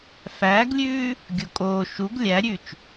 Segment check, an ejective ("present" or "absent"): present